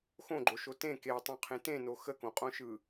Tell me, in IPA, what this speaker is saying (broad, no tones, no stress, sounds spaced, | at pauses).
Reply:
x õ ɡ͡ǃ o ʃ o t ẽ k e w tˤ õ qʰ ẽ t ẽ n o x ə k õ qʼ õ ʃ ɯ